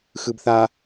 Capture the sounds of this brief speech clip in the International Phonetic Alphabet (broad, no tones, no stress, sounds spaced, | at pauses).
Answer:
x ɯ b θ a